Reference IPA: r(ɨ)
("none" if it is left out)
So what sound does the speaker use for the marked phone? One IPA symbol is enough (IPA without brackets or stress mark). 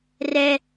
ɛ